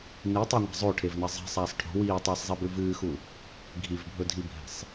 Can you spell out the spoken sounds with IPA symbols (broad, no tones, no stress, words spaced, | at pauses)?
nitˤiŋʷa̤ zˤoʈʰevnɐ zˤi̤sˤaːsˤ ʈʰo̤ wiːtˤɨːsˤzˤibʉ vɨːxu | ɡʱivbʱɵdʱibʱe̤sˤ